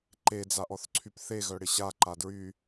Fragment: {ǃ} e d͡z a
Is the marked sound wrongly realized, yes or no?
no